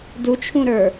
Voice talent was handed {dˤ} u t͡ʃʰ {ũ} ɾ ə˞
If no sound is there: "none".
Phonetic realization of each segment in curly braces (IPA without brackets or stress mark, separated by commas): d, ũ